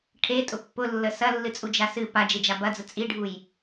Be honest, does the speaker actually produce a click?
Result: no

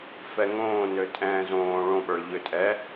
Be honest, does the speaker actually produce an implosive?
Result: yes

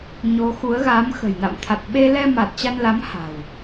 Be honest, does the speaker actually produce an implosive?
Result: yes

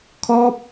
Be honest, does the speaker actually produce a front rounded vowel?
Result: no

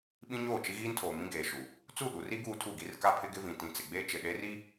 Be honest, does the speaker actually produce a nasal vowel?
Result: yes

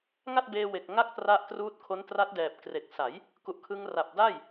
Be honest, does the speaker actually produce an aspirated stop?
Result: yes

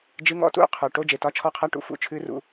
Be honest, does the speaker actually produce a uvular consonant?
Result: yes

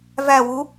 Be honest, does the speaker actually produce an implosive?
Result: no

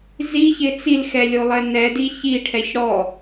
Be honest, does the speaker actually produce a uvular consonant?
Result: no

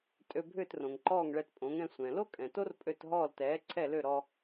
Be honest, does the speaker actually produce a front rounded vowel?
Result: yes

